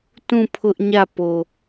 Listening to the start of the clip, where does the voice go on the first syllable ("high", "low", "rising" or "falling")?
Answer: falling